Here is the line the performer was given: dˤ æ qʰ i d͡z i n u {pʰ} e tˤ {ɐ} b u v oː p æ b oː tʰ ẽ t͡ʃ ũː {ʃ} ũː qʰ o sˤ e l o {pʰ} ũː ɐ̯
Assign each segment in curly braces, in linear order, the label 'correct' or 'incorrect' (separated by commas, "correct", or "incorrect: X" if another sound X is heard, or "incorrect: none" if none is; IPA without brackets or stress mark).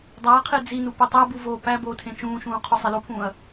incorrect: p, incorrect: æ, correct, correct